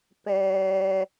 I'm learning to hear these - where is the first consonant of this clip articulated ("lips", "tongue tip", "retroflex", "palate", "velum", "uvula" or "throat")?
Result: lips